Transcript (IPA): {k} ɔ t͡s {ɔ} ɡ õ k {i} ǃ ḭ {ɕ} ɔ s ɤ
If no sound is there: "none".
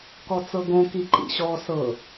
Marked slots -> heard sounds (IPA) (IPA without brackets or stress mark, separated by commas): k, ɤ, i, ɕ